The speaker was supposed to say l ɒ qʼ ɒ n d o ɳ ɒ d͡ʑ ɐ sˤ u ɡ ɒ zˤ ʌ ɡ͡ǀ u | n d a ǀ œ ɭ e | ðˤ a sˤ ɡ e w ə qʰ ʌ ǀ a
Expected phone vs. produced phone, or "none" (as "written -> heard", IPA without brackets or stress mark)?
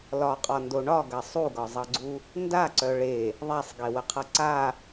d͡ʑ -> ɡ